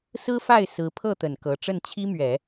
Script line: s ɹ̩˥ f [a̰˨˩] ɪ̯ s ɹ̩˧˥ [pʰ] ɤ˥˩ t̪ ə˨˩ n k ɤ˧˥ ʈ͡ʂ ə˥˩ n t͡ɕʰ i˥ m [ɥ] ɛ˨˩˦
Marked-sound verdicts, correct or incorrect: incorrect: a˥˩, correct, correct

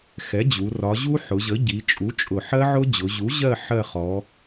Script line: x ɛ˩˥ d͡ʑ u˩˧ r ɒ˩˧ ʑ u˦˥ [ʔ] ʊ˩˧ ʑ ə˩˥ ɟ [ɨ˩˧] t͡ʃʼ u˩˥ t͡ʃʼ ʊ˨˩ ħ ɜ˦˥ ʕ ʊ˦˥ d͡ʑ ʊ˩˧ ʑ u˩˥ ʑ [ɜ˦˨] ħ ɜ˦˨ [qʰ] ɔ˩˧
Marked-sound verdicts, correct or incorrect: incorrect: ħ, incorrect: i˩˧, correct, incorrect: χ

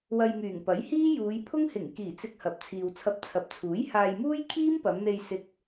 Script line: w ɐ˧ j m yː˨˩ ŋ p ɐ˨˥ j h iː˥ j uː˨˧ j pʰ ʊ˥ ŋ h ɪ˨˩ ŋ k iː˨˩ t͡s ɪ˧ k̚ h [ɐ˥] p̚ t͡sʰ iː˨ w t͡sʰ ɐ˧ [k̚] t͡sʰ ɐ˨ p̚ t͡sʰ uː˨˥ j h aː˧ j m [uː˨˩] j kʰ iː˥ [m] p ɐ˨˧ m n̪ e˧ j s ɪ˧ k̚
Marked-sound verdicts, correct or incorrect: incorrect: ɐ˨, incorrect: p̚, incorrect: uː˥, correct

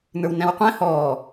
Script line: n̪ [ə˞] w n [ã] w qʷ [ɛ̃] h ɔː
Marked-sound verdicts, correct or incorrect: correct, incorrect: æ̃, correct

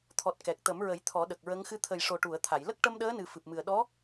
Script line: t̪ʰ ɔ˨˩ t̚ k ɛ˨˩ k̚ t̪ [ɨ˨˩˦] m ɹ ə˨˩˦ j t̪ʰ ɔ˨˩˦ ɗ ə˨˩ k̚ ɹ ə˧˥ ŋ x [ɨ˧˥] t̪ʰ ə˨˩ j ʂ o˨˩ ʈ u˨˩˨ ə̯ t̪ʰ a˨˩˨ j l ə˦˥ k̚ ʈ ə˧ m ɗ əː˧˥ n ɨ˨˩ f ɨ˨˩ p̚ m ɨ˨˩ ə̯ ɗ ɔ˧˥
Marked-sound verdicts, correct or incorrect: incorrect: ə˨˩˦, correct

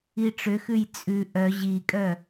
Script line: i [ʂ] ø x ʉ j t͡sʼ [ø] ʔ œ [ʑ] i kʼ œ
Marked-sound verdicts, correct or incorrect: incorrect: ʈ͡ʂ, incorrect: ʉ, correct

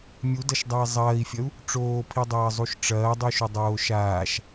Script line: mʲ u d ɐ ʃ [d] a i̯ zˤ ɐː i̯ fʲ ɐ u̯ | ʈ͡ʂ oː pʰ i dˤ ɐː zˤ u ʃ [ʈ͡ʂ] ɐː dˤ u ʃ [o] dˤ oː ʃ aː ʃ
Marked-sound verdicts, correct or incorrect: incorrect: dˤ, correct, correct

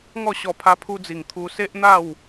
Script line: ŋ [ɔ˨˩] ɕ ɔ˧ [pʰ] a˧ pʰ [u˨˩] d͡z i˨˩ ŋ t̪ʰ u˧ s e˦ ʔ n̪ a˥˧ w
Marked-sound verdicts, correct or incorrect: incorrect: ɔ˥˧, correct, incorrect: u˧

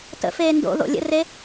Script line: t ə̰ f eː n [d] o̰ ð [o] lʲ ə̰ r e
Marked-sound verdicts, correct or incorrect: correct, incorrect: o̰

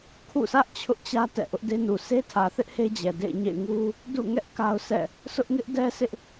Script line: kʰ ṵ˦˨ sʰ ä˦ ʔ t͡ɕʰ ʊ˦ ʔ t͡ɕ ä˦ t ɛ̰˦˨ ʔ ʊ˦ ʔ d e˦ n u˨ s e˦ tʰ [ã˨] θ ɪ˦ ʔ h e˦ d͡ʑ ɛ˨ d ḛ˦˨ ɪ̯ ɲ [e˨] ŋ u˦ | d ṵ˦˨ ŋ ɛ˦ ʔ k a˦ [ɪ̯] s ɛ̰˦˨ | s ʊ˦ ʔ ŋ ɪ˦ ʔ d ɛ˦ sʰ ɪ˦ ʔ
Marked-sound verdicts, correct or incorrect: incorrect: ä˨, incorrect: ḛ˦˨, incorrect: ʊ̯

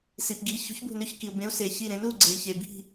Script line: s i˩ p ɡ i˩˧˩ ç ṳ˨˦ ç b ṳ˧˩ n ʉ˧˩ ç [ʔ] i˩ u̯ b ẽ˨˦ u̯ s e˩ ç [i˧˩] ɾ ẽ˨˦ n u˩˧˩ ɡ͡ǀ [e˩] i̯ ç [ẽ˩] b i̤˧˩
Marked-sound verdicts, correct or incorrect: incorrect: k, correct, correct, incorrect: e˩

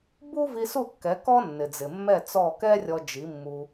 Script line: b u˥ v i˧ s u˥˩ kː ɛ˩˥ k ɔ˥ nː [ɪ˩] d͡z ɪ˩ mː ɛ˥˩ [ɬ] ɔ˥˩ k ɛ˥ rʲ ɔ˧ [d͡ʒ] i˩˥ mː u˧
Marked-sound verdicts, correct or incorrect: correct, incorrect: t͡s, correct

